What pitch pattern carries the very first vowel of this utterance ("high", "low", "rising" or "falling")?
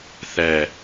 low